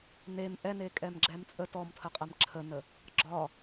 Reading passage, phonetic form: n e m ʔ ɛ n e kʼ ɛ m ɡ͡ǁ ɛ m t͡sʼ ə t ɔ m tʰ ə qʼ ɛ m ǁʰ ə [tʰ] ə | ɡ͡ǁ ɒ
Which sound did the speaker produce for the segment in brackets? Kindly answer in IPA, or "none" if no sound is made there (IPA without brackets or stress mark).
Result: n